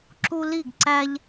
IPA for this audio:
ǁu˦li˥˩ɡǀæ˦ʎ

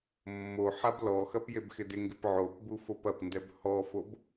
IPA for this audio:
mːo ħablɔxɐp jebxɪdɪŋɡɪp ʕopbu fopɐpndɛb hɔfob

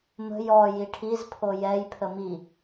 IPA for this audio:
mə̤ jɔji ʈʰizpʰo jɛjpʰə mi

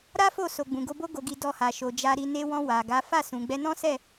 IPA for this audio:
ɾa˦fo˦˨ so˨ɡ͡bũ˨ɡo˧ bo˦ɡo˧ɡi˧ dɔ˧ha˨ʃo˨ d͡ʒa˧ɾi˧ ne˧wɔ̃˧ wa˨ɡa˨˦ fa˦˨ sũ˨ɡ͡bɛ˧nɔ̃˦sɛ˦˨

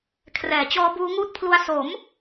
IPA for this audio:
kʰrɛː˨˩t͡ɕɔː˦˥buː˦˥ ŋuː˥˩t̚ pʰlu˦˥a̯ so˩˦m

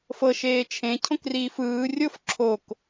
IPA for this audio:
fɤ ʃeːt͡ʃʰẽ cʰõkriːfɯː rʲof ǁʰok

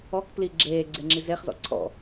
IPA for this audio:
ɔkpli ɡ͡ǁeː ɡ͡ǀeŋ͡ǁizeχzɔ̰ ǀʰɔ̰

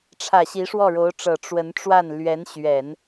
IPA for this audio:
ʈ͡ʂʰä˨˩ɕi˧˥ ʂwɔ˥˩ɻo˧˥ʊ̯ʈ͡ʂɤ˨˩ ʈ͡ʂwə˧˥nʈ͡ʂwa˥˩n lɥɛ˧˥nɕɥɛ˨˩˦n

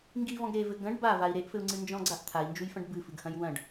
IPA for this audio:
ŋɡivɔ̃ɡ ɾevɘ ɡɐ̃ɖ bavai̯ ɾeʔfɘu̯ŋ͡ǀɨ nd͡ʒɔ̃ɡ͡ǀaʔ t̪ʰai̯nd͡ʒujfɐ̃ɖ bɨfɨɡhɐ̃j wɐ̃ɖ

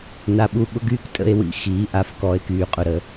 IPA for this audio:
na˨ɓu˧ɓʊ˦ ɡyː˦ktʼə̰˧e̯ wḭ˧ xiː˨˦ʔa˧f kɔ˨˦e̯ kyː˨qʼʊ˧ɾə˧

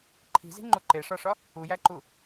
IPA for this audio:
ǃʰi̤zi̤ŋ͡ǃu ǃeʂɒʂɒ | ujæǃu

